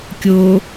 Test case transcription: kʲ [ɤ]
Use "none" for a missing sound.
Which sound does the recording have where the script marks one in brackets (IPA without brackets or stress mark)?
o